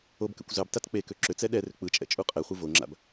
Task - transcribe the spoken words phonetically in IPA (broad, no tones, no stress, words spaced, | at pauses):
obkɛ̰kʷ zɑbtat k͡pekø ǁʏt͡sɛ ɗɛrʏ k͡pɯt͡ʃʼɛ̰ t͡ʃʼuqʼɛχʷɯ voŋ͡ǁa̰b